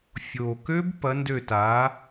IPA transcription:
fʲ o˨˩ k ø˦˥ b p ɐ˨˥ n d ø˦˨ t a˨˥

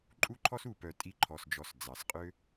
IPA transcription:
ǃʼ u˥ ǃʰ ɔ˥ s u˨ p œ˨ tʼ i˦ ǃʰ ɔ˨ s d͡ʒ ɔ˨ s d͡z ɑ˩ s qʼ ø˥

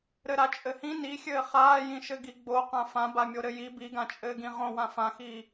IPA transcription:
ɾ ɘ ɾ a t͡ʃʼ ɘ h ĩ n i xʲ ɘː χ aː j ĩ ʃ ɘ ɡ i ɡ͡b o q ã f ã b a mʲ o ɾ ɘ j i b i ɡ ã t͡ʃʼ ɘː ɡ ĩ ʁ õ w ã f ã x iː

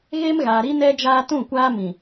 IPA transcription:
ɣ eː˦ m ɣ aː˨ ɾ i˦ n ɛ˦ d͡ʒ aː˦ t ũ˦˨ kʷ aː˦ m ĩ˨

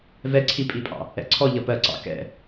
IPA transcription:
v ɛ ǀʰ i pʼ i pʼ ɑ̰ | ɛ̰ ǀʰ ɔ ʎ ʌ p ɜ ǀ ɑ̰ k ɛ̰

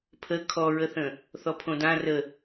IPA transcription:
pʰ ə kʰ ɔ ɹ ə θ ə̃ | θ ɔ pʰ õ d ã r ə

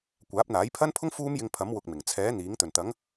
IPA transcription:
kʷ aː˨˥ p̚ n̪ aː˨˥ j pʰ ɐ˥ n pʰ ʊ˥ ŋ f uː˥ m j ɪ˧ ŋ pʰ ɐ˨˥ m w ʊ˧ k̚ m ɪ˨˩ ŋ t͡sʰ ɛː˨˥ n̪ iː˨˥ ŋ t̪ ɵ˨˩ n t̪ ɐ˨˥ ŋ

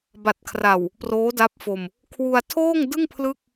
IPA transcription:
b a˨˩ t̚ kʰ r a˨˩ w | p r oː˦˥ d a˦˥ p̚ f o˧ m | kʰ w u˧ a̯ tʰ oː˥˩ ŋ d ɯ˥˩ ŋ pʰ l ɯ˥˩ k̚

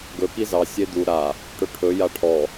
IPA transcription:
ɡ ɵ k i z ɑ sʲ e d̪ u ɾ a | ʈ ɵ ʈʰ ɵ j a ʈʰ ɔ

